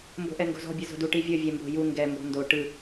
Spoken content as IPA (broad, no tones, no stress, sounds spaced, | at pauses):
m b o̤ ʔ ɛ ŋ ɡ o̤ z ɔ̤ bʲ ɯ z o̤ d u ʈ i vʲ ɤ vʲ ɛ m b o̤ j u ŋ ɡ ɛ m b ɔ̤ n d o ʈ ɯ